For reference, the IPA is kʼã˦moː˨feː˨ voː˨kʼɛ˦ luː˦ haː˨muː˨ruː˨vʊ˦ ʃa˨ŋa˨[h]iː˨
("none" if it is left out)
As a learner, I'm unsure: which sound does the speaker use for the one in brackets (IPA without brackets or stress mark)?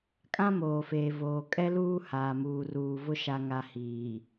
h